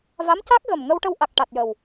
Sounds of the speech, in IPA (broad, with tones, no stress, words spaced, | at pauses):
va˧˥mca˦˥k̚ɣə˨˩m ŋə˧wʈə˧w ʔa˨˩k̚ ʈa˨˩t̚jə˨˩w